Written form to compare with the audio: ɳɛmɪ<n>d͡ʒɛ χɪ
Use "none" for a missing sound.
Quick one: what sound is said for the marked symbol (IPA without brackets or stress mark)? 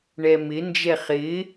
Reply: n